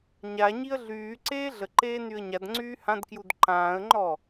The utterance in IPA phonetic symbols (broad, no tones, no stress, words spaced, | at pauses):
ɲa ɲiə̯ɮyːǀeː ɮəǃeː nyə̯ɲadŋ͡ǀyː hãdkjud ǃãːə̯ŋ͡ǃɔ